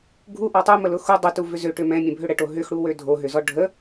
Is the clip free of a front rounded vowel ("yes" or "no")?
no